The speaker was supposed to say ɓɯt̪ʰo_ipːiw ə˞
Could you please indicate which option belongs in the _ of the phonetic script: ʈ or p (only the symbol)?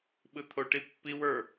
ʈ